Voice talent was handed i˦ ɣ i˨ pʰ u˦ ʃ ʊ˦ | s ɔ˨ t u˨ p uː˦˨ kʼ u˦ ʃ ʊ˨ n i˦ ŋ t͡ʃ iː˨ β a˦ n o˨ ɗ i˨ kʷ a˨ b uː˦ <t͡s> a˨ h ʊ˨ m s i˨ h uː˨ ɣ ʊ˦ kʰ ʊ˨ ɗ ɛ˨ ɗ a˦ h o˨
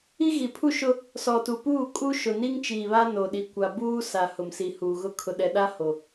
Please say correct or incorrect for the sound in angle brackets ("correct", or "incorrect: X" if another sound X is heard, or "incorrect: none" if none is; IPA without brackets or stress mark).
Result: incorrect: s